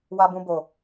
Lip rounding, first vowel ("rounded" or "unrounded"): unrounded